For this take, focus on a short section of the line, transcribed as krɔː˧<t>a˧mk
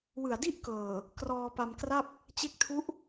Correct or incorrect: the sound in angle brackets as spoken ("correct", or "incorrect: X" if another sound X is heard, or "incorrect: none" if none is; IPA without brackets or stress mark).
incorrect: p